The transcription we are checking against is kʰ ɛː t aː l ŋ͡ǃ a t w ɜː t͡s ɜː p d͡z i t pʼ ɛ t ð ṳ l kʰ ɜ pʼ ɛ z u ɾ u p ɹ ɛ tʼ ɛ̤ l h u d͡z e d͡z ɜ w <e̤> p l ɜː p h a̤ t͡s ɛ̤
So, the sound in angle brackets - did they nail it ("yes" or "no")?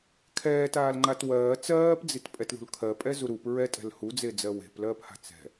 yes